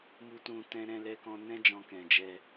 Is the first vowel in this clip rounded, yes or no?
yes